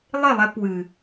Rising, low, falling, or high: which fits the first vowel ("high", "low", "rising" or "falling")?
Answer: falling